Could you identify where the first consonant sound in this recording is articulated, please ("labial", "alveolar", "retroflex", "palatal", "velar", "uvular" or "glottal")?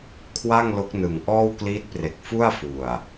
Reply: velar